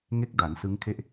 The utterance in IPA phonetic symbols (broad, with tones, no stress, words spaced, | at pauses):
ŋe˦˥k̚da˩˦n sɯ˦˥ŋkʰe˥˩ʔ